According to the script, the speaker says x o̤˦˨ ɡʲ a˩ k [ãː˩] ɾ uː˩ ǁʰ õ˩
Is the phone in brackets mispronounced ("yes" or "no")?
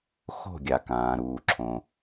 no